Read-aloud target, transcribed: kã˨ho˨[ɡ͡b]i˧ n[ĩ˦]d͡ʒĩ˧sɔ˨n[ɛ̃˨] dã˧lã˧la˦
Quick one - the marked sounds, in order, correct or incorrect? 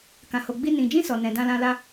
correct, incorrect, correct

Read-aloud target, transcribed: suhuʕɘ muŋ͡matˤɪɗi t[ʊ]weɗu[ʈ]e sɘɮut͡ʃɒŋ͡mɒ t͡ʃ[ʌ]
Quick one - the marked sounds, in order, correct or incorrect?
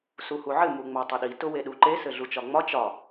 correct, incorrect, incorrect

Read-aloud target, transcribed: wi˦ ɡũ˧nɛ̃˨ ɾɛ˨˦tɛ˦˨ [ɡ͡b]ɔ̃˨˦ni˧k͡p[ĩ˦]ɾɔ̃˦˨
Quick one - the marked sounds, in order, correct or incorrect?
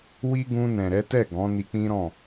incorrect, correct

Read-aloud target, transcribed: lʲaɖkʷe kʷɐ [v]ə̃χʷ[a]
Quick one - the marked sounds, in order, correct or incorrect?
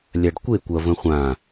correct, incorrect

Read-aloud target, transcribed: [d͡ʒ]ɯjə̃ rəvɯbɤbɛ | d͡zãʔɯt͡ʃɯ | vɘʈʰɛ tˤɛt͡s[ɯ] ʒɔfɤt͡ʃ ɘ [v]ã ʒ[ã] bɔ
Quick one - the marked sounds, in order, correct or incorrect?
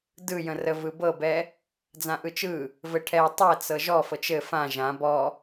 incorrect, incorrect, incorrect, correct

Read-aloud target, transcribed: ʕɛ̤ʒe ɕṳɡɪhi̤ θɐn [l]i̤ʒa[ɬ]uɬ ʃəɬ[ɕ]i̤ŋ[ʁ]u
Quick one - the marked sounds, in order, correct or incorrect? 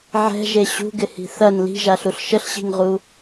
correct, correct, correct, correct

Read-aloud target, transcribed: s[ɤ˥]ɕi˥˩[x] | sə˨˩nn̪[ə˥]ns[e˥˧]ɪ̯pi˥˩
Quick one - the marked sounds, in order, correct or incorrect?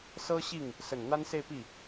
correct, incorrect, incorrect, correct

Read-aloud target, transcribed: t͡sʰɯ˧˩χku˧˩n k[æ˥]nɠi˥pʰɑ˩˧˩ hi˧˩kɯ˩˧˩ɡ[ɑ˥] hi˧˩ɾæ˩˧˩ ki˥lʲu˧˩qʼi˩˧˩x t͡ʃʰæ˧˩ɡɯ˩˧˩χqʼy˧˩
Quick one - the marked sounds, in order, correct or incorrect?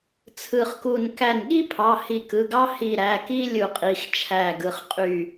incorrect, correct

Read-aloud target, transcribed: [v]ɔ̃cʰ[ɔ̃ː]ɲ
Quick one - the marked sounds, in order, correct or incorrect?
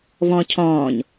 correct, correct

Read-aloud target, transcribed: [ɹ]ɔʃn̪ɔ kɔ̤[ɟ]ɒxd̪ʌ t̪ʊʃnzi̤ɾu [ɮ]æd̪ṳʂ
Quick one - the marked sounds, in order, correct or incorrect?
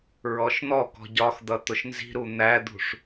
correct, correct, incorrect

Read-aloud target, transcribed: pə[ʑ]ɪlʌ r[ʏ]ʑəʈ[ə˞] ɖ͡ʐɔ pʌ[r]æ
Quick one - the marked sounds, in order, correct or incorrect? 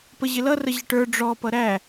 correct, incorrect, correct, incorrect

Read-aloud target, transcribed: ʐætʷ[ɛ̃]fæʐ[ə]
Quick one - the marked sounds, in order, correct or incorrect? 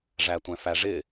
correct, incorrect

